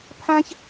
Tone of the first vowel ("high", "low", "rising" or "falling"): high